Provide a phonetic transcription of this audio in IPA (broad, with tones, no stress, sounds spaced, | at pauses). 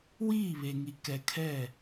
w iː˦˨ β e˨ ŋ i˨ k ɛ˨ kʰ ɛ˦˨